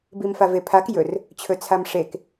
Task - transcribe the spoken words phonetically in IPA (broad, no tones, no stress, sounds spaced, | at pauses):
b i m f a v e pʰ a k j ɵ r | t͡ɕʰ ɵ t͡sʰ a m ʂ e k